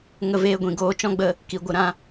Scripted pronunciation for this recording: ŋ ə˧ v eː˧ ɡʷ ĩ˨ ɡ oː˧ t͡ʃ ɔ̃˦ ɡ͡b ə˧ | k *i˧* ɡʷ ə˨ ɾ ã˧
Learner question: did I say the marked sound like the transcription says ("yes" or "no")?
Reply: no